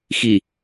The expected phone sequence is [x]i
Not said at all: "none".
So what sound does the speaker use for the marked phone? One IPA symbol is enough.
x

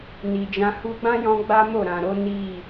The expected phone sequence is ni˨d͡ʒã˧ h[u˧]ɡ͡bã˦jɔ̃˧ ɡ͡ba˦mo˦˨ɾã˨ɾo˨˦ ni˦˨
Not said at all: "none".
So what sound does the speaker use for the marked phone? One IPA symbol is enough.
u˧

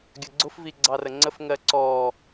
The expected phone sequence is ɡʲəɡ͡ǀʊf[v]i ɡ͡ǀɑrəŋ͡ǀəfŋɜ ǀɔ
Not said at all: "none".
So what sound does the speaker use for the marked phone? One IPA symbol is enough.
v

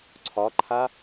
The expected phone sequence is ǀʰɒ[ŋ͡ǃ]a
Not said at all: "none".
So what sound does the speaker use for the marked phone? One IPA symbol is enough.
ǃʰ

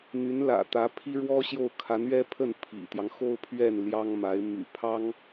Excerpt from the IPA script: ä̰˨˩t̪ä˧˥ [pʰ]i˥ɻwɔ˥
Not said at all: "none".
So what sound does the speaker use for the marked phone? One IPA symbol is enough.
pʰ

